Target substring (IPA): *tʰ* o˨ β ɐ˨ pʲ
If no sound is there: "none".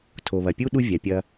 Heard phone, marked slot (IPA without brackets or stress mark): tʰ